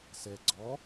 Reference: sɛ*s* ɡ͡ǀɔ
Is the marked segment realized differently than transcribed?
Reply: yes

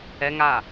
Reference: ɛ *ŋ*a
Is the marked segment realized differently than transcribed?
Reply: no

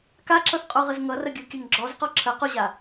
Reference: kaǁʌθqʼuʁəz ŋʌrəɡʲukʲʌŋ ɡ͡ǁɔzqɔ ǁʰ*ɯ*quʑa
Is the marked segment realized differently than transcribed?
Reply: yes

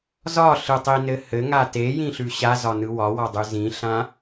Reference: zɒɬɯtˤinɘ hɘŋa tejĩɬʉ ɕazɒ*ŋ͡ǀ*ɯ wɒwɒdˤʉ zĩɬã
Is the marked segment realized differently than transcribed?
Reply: yes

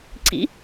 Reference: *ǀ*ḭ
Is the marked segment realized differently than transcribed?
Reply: no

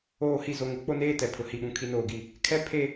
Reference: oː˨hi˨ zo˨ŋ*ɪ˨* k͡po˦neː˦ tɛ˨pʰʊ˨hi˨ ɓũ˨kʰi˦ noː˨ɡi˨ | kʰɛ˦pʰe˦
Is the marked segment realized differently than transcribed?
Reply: no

